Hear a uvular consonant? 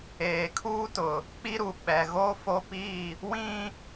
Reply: no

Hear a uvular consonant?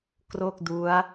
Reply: no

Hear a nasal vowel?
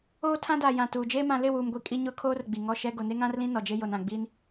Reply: yes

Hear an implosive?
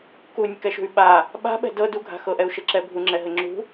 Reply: yes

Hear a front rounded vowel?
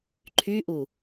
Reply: yes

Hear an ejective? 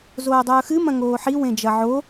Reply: no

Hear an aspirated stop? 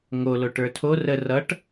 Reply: yes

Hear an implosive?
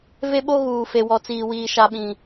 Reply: yes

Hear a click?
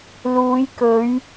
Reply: no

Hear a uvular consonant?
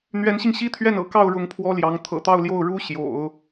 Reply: no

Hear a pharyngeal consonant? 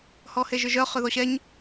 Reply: no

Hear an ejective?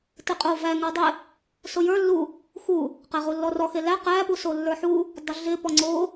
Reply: yes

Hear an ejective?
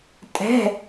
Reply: yes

